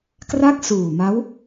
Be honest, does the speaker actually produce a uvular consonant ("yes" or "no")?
no